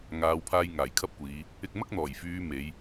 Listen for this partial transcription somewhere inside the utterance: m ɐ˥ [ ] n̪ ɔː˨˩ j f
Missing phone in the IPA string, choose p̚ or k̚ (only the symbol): k̚